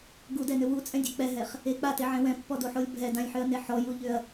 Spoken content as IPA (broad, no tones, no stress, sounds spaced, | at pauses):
ɡ u d ɛ n ʏ w u t͡sʼ ɛ̃ dʲ ɛ k͡p ɛ ɦ ɛ χ | e k͡p a t e ʕ ɛ̃ w ɛ̃ pː ɔ d o ħ o lʲ bʱ ɛ d ã lʲ ħ ʏ ɐ̯ n e ħ ɔ j u ʎ ʏ ɐ̯